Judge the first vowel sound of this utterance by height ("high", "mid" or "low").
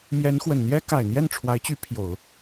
mid